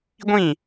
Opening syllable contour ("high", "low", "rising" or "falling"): falling